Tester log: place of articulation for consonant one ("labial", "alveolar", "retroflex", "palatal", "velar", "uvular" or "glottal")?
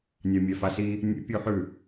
alveolar